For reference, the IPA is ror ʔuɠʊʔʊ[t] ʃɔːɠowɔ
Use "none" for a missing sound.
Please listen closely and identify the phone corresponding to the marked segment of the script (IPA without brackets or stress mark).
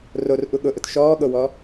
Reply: t